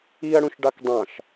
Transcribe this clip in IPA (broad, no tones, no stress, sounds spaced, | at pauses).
i ɐ̯ ɽ ũ ʃ ɖ ɑ k dˤ ɑ̃ ʃ